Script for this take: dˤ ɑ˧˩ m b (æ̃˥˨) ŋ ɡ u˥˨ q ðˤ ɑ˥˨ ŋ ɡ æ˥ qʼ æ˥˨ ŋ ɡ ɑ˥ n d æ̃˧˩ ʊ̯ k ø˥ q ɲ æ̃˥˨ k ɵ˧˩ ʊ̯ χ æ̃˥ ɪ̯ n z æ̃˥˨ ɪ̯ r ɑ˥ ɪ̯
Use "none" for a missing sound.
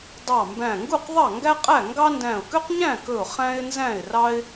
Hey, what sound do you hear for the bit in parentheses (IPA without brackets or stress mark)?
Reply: æ̃˧˩